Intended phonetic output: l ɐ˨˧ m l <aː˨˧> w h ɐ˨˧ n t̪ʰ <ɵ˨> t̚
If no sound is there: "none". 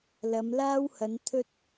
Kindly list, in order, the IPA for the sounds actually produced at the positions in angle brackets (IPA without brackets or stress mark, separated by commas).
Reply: aː˥, ɵ˥